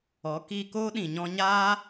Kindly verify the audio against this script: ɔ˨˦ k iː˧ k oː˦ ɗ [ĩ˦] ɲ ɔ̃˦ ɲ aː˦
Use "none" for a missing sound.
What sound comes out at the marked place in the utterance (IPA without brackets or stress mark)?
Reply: ĩ˨